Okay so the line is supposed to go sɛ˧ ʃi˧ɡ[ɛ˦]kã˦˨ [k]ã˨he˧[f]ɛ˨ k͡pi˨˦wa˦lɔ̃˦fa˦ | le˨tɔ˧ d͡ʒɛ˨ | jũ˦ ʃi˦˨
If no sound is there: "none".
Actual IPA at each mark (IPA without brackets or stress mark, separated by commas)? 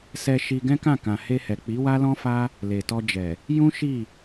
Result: ɛ̃˦, k, h